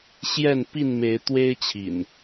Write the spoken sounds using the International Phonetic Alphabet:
ɕ j ɛ˥˨ n p i˥˨ n m e˨˦ ɪ̯ t̪ w e˦ ɪ̯ t͡ɕʰ ḭ˨˩ n

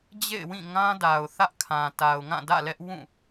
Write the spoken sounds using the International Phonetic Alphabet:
d͡ʑ ḛ˦˨ ɪ̯ w ĩ˦˨ ŋ ã˦ d a˨ ʊ̯ θ ä˦ ʔ kʰ ã˨ t a˨ ʊ̯ ŋ ã˦˨ d ä̰˦˨ l ɛ˦ ʔ w ũ˦˨

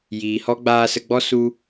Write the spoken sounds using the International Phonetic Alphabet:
j iː˨ h ɔ˦ ɡ͡b aː˧ s ə˧ ɡ͡b ɔ˦ s u˦

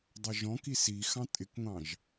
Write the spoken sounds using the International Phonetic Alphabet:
dˤ ʌ ʒ ɔ̃ k i s i x ɑ̃ tʼ ɪ k ŋʷ ɑ̃ ʒ

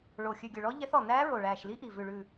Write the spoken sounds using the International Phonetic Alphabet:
ɭ o˨˩ xʲ ʉ˨˩ ɡʲ ɵ˨˩ ɭ ɔ˧˥ ʎ ɛ˧˥ θ ɔ˨˩ n æː˧˥ ɹ o˨˩ ɭ æː˨˩ ʃ l i˧˥ ʔ i˨˩ v ʉ˨˩ ɭ ʉ˨˩

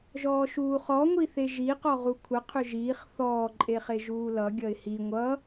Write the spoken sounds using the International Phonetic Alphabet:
ʒ ɔː ʃ uː χ ɔ ŋʷ i θ e ʒ i q ɔ ʁ u kʷʰ ə qʰ ʏ ʒ iː χ θ ɔː ǃʼ e χ e ʒ uː l ʌ ɡʲ ʌ ɪ̯ h i ŋʷ ʌ

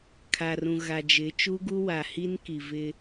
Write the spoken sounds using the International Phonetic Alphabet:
kʰ a˨ r ũ˨ ɣ a˨ d͡ʒ ɪ˨˦ t͡ʃ u˦ ɡ u˦ w a˨ h i˦ n k i˨ v ɪ˦

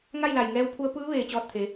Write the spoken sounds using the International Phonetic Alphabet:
ŋ a˥˨ j l a˧˩ j ŋ ɛː˧˥ w pʰ u˧˥ ə̯ p ɯː˧˥ ʋ eː˧˩ t͡ɕ ɔː˧ t̚ t̪ʰ e˩˧

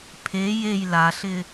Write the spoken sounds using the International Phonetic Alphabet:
pʰ e j e j l a ɬ ɪ

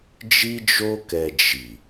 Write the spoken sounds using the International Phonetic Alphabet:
d͡ʒ i˧ d͡ʒ o˧ k ɛ˨ d͡ʒ i˨

